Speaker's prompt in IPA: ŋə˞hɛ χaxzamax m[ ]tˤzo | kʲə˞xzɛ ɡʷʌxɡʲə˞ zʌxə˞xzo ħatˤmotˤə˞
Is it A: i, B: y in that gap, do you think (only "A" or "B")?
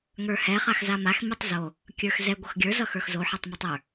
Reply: A